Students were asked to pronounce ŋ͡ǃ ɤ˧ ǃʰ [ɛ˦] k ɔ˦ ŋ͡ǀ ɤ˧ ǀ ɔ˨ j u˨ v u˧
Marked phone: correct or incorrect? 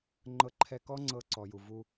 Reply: incorrect